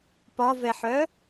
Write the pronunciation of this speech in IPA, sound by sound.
pɒvɛħœ

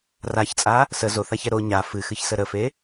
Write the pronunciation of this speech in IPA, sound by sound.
raçt͡sʼa | sə zoθaçɛ ɾo ɲa fɨxɨçsə ɾəfe

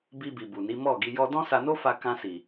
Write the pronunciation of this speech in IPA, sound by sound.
bi˧bi˨ bu˨ni˨˦ mɔ˦˨ɡi˧ jɔ˧dɔ̃˦ sa˧no˦fa˧ kã˧si˨

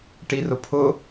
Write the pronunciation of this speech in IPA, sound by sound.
ʈirʊpʰʊ

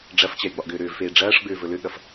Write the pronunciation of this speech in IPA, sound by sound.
ɖ͡ʐɐft͡ɕɛi̯ ɡ͡bɒʔɡʏːɾʏːvfeː ɖ͡ʐɐːʂɡ͡bʏː vɵlʏɠɐf

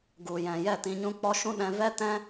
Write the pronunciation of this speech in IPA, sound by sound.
ɡu˨jɛ̃˨ jɛ˦˨tĩ˧ɲũ˦ k͡pɔ˦ʃũ˦ɗɛ̃˧ vɛ˦tɛ̃˦

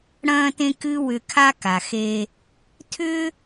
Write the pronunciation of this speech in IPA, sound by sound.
ɽɐ̃ː˥tẽ˥kɨ˥ wʏ˧kʰa˥ka˩xe˧ | tʰʏ˥

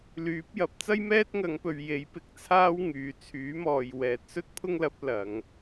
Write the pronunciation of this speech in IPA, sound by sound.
lyː˨˥p̚jɐ˨˥p̚ t͡sɐ˥jmɛː˥t̚ŋɐ˨˧ŋpɵ˨ɥ je˨˥jpɪ˨˥k̚t͡sʰaː˥w ŋyː˨˧ t͡sʰyː˨˥mɔː˨j wɛː˨˥t̚sɵ˥t̚pʰʊ˥ŋlɐ˨˥p̚ lɐ˨˧ŋ

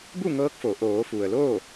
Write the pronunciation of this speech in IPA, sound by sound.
bu˥˨ŋɤː˧˥k̚fo˩˧ ʔoː˩˧fu˩ə̯ loː˥˨

